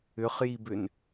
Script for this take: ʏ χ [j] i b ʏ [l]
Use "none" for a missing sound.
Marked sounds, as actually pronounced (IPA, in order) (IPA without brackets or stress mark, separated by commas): j, n